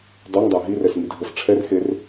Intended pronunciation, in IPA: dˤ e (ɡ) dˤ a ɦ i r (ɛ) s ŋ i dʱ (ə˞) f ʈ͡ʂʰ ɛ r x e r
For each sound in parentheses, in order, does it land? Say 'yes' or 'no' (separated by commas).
no, yes, no